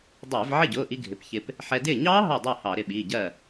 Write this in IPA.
dˤ ɪː˧˩˧ v ʕ ɪ˥˩ ɟ ʊː˩˧˩ ʔ i˧ ɡʱ ɪ˩˧˩ p ç ɪ˧ p | ħ ɛ˧ d ɪː˥˩ ɲ ɑː˦˥ ɦ ɑ˧˩ dˤ ɜ˧˩ h ɑ˧˩˧ ɾ ɪ˧ ɓ iː˩˧˩ ɟ ɜ˥˩

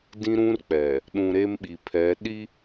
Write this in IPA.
d ĩ˦ ɾ ũ˦ r k͡p ɛ˨ | ɗ ũ˨ ɾ e˦ m ɓ i˨ pʰ ɛ˨˦ ɗ i˦

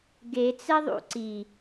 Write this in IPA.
ɡ e t͡s ɛ ðˤ ṵ ǀ i

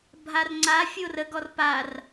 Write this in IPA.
bʱ a r ŋ͡ǀ a fʲ o r ə ɡ ɔ r p a r

